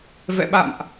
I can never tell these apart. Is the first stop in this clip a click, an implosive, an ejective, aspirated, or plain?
implosive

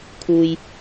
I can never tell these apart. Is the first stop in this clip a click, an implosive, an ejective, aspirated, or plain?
aspirated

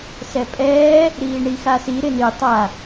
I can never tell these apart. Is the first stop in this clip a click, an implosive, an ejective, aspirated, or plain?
ejective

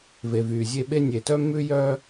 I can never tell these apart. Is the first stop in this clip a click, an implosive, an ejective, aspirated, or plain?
implosive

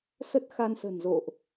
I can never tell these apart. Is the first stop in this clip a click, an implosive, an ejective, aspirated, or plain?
plain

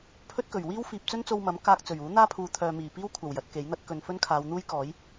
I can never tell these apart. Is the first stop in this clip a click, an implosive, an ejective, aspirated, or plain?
aspirated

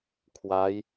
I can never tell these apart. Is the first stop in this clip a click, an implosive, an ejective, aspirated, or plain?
aspirated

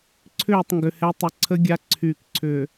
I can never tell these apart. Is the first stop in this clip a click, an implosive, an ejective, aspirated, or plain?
click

